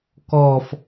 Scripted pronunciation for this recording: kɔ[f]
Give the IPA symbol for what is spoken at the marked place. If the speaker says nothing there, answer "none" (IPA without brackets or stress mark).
f